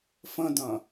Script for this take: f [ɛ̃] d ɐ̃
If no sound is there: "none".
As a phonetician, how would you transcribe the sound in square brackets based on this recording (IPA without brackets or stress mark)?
ə̃